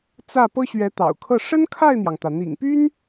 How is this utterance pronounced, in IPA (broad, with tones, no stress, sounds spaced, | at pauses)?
t͡s ä˥˩ p ɤ˥ ɕ ɥ ɛ˧˥ t̪ ɑ̰˨˩ ʊ̯ kʰ ɤ˥˩ ʂ ə˥ n kʰ a˥˩ ɪ̯ n̪ j ɑ˩ ŋ t̪ ä˩ n̪ ḭ˨˩ ŋ p y˥ n